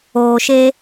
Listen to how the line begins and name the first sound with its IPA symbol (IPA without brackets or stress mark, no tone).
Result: oː